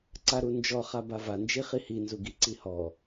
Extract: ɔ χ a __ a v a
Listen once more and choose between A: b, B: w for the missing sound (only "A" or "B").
A